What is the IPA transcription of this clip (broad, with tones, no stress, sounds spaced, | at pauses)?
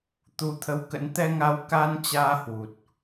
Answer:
t̪ u˧ t̪ʰ ə˧ w k ə̰˧˥ n t̪ ɛ˧ ŋ a˨˦ w k a˧ n t͡ɕ aː˧ h w u˨˩ t̚